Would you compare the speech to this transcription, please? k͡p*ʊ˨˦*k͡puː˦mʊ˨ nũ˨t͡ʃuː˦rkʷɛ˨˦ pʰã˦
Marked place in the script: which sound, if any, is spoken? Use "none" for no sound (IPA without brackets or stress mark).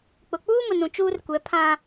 ʊ˨